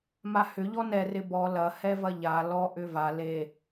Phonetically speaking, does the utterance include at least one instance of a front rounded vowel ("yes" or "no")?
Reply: yes